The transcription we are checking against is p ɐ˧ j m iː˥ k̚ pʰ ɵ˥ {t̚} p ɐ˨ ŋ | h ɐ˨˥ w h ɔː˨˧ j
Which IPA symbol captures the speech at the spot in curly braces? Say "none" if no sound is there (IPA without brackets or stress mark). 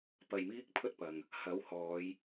t̚